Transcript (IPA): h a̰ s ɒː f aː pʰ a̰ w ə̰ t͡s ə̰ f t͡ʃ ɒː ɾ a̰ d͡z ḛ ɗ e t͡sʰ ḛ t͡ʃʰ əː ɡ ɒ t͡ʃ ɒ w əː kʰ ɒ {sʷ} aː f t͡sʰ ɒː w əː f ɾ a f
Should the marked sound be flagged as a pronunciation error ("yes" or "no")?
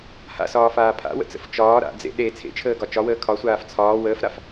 no